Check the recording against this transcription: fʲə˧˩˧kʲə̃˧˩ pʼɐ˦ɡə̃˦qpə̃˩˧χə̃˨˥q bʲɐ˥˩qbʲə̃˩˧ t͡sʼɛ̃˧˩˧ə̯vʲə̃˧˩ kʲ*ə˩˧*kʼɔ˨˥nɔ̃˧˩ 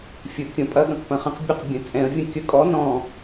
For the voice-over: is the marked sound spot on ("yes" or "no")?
no